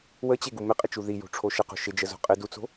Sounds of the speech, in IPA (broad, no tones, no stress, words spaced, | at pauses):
wət͡ɕeɡu mɪqʼɪt͡ʃu ði jo̤ʈ͡ʂʰoʃə qo̤ʃɪ d͡ʒəzo̤qʼɪ dut͡so̤